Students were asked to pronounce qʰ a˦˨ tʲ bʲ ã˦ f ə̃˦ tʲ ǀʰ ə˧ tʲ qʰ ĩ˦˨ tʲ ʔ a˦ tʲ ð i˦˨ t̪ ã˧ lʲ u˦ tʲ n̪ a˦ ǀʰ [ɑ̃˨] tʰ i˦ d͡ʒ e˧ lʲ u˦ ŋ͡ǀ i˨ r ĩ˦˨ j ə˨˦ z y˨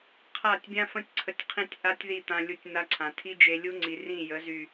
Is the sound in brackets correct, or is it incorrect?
incorrect